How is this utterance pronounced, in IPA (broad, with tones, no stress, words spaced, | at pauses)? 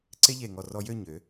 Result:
ǀe˥ʎe˧˩ŋɔ˧˩ rɔ˧jø˥˧ ɲø˩˧